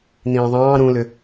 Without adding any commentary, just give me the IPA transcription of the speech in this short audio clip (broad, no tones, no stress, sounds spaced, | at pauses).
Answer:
n ĩː ðˤ ɑ̃ː ɾ ũ l ʏ